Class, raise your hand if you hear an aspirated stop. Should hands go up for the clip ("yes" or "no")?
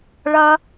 no